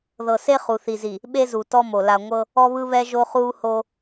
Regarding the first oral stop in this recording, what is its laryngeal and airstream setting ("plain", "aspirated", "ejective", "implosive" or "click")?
implosive